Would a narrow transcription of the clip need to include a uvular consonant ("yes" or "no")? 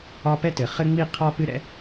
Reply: yes